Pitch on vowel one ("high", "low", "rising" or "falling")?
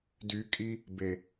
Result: rising